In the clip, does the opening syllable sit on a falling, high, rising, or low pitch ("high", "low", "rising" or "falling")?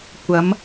rising